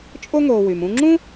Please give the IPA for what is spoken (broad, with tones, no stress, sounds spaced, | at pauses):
t͡ʃʼ o˥ ŋ o˨ w y˩ m ũ˦ ŋ͡ǁ ũ˥